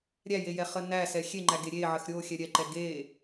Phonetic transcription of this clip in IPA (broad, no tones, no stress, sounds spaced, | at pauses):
ɾʲ æ j e j ɛ χ ə n æ s ɛ xʲ e ŋ͡ǃ æ ɡ e ɾʲ e ʕ ə x ɾʲ o xʲ ɛ ɾʲ ɛ ǃ ɛ ɡ e